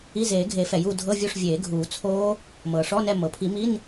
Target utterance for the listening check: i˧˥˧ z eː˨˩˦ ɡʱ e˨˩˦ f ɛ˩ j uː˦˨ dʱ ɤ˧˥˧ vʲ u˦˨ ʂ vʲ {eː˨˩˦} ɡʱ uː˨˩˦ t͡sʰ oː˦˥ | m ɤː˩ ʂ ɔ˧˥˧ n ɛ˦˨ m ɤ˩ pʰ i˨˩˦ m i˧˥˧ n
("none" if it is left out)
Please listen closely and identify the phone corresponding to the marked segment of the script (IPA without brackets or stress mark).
eː˨˩˦